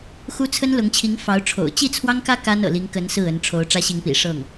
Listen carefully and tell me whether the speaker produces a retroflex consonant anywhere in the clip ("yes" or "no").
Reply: yes